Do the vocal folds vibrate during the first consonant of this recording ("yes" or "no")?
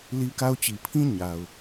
yes